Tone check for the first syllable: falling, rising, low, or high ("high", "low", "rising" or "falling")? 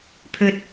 low